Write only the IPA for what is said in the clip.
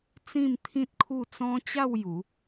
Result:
t͡sĩ˥˧mt̪ʰĩ˦t̚kʰu˥˧ t͡sɔ̃˦t͡ɕa˥˧w ju˨˦

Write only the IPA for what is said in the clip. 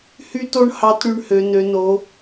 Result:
hy˥to˥ɳ hɑ˧˥tɽy˧ɳhø˩˧ nø˩˧no˩˧

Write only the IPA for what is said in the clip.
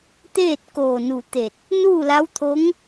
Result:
t̪eː˥˨t̚koː˧˩nu˧˩t̪e˧˩t̚ | nuː˥˨la˧˥wt̪ʰo˧˥ŋ

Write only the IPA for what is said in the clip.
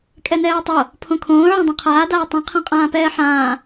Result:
kʼɛnɛːtˤo | pʰõkʰõː ʕɛ̃dˤõqʰaː daːtˤɛ̃ qʰãqʼãːpɛːħãː

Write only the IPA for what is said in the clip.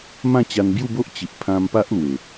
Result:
mã˥˧t͡ɕa˧nbju˥˧bo˦ʔ t͡ɕi˨ʔpʰã˧mpa˦ʔ lwe˨˩

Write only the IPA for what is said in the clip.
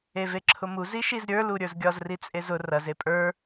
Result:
eveǁʰʊmu ziʃizɾʲə˞ luɾʲə˞zɡʲɒz rit͡sʼezʊ rɐz epʼə˞

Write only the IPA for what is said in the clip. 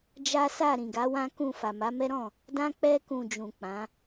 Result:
d͡ʒa˦sa˦˨ ɾĩ˨ɡa˨˦ wã˦kũ˦˨ fa˨ma˨˦mɛ˦ɾɔ̃˦˨ | dã˧k͡pɛ˧kũ˨ d͡ʒũ˨k͡pã˨˦

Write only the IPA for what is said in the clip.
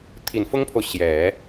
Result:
t̪ʰi˨˩nfʊ˥ŋpʰo˨ʊ̯ ɕjɛ˨˩˦

